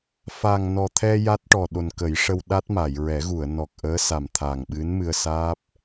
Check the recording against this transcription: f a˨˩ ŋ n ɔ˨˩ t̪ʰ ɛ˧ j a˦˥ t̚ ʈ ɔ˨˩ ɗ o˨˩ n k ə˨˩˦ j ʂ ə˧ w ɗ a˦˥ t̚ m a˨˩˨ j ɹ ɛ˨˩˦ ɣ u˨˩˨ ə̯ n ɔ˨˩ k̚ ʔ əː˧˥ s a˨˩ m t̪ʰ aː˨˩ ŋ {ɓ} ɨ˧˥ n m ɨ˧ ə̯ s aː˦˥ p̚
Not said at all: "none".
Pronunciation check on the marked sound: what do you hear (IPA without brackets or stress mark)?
ɓ